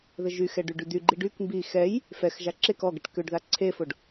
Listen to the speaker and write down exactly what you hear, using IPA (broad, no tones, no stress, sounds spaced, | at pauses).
ð ə ʒ y x ɛ ɖ y ɖ y d̪ y ɡ͡ǃ i ɖ y k m b i x ɛ j | f ɛ x ʒ a ǁ e k ɔ ɡ ə ʈ k ø ɖ ð a ǀʰ e f o ɖ